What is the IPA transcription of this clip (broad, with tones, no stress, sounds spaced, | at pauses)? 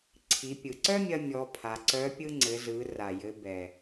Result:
ǀʰ i˩˧ pʲ ɯ˩ ǀ œ˥ mʲ ɐ˧ mʲ ɔ˩˧ pʰ a˩˧ ǀ œ˧˥ pʲ ɯ˧ ŋ͡ǀ ɘ˩˧ z ɯ˩˧ r a˩ j ɘ˩˧ b ɛ˩